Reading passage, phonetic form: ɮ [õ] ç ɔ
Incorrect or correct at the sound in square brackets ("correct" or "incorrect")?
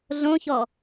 correct